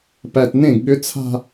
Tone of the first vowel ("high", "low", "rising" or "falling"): low